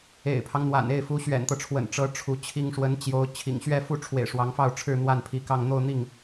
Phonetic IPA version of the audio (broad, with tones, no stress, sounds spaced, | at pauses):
ḛ˨˩ ɪ̯ pʰ ɑ˦ ŋ n̪ w a̰˨˩ n e˥˩ ɪ̯ f u˧˥ ɕ ɥ ɛ̰˨˩ n t̪ ɤ˦ ʈ͡ʂʰ w ə̰˨˩ n ʈ͡ʂ ɤ˧˥ ʈ͡ʂʰ u˧˥ t͡ɕʰ i˥ ŋ ʂ w ə˧˥ n t͡ɕ j o˧˥ ʊ̯ t͡ɕʰ ḭ˨˩ ŋ ɕ ɥ ɛ˥˧ f u˥˩ ʈ͡ʂʰ w ḛ˨˩ ɪ̯ ʂ w ɑ˧˥ ŋ f ɑ˥˧ ʊ̯ ʈ͡ʂʰ ɻ̩˥˧ n̪ w a˥˩ n pʰ i˧˥ k ɑ˥˧ ŋ n̪ o˥˧ ʊ̯ n̪ i˥˩ ŋ